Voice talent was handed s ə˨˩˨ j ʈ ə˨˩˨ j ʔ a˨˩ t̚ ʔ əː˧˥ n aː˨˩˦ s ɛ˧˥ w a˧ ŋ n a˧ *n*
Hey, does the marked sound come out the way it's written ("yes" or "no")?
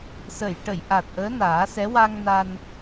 yes